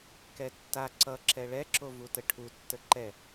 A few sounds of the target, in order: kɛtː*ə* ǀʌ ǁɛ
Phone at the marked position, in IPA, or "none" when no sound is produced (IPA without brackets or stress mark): a